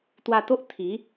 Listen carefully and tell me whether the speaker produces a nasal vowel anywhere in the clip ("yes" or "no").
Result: no